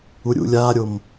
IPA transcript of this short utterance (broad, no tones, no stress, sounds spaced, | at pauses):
u ɾʲ ṵ lʲ aː ɾʲ o m